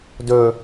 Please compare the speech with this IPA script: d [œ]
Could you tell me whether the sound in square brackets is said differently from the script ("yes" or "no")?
yes